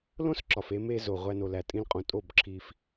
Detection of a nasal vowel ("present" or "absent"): present